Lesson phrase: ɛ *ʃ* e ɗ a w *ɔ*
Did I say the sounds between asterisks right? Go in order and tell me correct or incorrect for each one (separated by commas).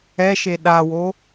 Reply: correct, incorrect